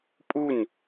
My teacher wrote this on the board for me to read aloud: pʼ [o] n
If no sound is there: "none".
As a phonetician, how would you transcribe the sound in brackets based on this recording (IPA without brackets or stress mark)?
u